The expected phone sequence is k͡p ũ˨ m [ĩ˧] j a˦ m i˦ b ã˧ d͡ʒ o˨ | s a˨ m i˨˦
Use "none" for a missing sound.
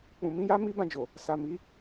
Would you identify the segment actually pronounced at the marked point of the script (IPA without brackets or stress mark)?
ĩ˧